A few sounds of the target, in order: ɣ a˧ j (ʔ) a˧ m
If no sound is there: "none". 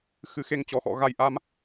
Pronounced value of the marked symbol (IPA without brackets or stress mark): ʔ